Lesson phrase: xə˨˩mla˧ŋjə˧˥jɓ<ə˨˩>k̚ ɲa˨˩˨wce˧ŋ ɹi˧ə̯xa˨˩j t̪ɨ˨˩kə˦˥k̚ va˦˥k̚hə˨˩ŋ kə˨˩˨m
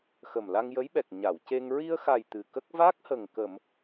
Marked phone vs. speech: incorrect: ɛ˨˩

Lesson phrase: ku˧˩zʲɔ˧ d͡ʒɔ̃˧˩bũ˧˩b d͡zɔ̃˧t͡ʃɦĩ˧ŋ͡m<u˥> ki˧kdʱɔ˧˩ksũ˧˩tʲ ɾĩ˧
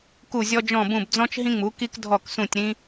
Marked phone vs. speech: incorrect: u˩˧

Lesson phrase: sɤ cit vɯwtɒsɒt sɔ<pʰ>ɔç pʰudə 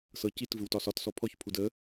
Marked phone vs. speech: correct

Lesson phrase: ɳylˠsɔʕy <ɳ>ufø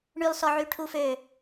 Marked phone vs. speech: incorrect: ʈʰ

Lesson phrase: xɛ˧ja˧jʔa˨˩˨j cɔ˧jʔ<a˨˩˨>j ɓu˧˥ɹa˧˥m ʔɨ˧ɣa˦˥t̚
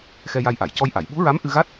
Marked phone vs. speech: correct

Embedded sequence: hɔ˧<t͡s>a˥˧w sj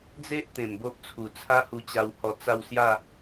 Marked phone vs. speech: correct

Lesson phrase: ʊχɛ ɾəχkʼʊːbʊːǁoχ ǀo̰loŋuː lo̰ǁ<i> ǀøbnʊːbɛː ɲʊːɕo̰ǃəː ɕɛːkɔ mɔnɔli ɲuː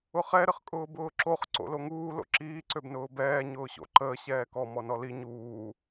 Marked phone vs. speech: incorrect: iː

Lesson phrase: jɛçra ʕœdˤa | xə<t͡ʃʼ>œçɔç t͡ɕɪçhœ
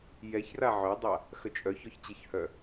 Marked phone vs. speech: correct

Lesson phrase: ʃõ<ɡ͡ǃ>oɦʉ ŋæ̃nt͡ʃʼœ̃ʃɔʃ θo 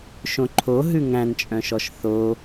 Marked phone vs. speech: incorrect: ǃʰ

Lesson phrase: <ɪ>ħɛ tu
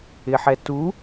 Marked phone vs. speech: correct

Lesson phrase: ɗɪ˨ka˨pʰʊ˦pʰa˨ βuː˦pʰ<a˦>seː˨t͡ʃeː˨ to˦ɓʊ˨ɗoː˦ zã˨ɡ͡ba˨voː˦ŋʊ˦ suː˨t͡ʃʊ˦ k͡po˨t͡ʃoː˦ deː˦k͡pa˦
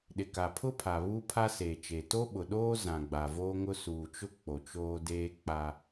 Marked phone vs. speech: correct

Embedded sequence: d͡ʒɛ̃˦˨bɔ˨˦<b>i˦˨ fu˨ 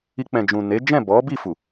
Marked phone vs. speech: correct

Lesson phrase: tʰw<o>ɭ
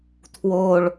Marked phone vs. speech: correct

